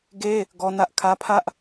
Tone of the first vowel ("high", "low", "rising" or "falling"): high